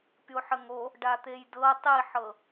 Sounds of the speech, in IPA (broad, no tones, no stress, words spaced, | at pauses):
pʲoħəŋo | ɖat̪ejdɤ tˤiħɤ